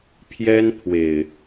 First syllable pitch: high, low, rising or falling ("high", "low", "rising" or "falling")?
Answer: high